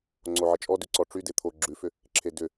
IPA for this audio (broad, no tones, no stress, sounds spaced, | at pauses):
ŋ͡ǀ o ʕ ə t͡ʃʼ ɔ d ʉ ǀ ɔ ʈ͡ʂ y d e t̪ʰ o ɡ͡ǁ ʉ f ʏ | ǁʰ e d ʏ